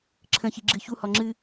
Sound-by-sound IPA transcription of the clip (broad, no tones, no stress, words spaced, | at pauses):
ǁʰə̃çi ɡ͡ǁɨçuhɔ ŋ͡ǁɨ